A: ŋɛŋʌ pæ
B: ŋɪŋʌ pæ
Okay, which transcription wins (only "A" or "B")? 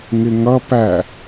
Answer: B